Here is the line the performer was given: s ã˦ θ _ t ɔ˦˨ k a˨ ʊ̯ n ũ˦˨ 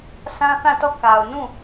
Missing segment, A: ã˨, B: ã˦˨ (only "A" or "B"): B